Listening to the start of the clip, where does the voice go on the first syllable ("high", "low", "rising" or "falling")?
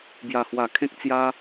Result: low